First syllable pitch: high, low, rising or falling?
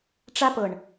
high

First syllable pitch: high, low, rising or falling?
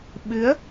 rising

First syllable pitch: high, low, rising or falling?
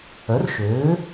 rising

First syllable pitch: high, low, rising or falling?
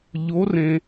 rising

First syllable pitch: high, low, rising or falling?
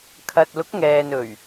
low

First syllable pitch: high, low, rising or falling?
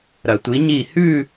low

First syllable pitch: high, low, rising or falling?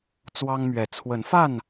high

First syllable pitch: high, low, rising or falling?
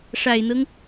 low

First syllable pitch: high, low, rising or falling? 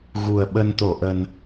low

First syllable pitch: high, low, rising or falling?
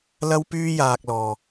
high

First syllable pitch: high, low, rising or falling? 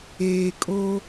low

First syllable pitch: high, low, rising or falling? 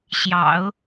low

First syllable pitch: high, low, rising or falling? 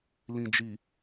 low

